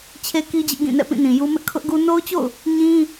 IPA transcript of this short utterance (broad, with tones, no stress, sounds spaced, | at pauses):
t͡ɕʰ e˦ k i˦ d͡ʑ ɪ˦ ʔ ɡ ĩ˦˨ n ɛ̰˦˨ p ĩ˦˨ n ĩ˨ j u˦ m ɪ˦ ʔ kʰ ʊ˦ ʔ ɡ u˦ n o˦ ʊ̯ t͡ɕ o̰˦˨ ʊ̯ | ɲ ĩ˦